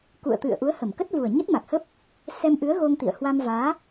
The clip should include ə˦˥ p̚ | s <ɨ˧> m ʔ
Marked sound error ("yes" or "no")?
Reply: yes